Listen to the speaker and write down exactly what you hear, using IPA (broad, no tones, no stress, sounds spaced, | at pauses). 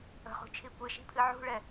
ə̤ χ ṳ t͡ʃʰ i kʷ ɨ ʃ i̤ pʰ ɨ ʕ ṳ ɭ ɛ